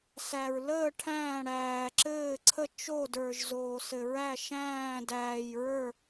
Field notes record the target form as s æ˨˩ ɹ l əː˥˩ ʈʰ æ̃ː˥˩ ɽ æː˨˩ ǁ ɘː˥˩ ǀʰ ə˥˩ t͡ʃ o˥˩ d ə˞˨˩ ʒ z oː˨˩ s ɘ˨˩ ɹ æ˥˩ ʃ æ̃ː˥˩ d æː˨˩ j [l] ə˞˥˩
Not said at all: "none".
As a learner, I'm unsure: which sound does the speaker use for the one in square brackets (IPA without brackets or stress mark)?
ɹ